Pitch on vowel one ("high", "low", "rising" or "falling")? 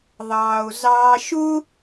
low